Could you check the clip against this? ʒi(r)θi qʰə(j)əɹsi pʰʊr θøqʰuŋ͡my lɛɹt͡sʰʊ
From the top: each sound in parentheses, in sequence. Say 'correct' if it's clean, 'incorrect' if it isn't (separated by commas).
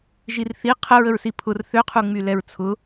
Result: correct, incorrect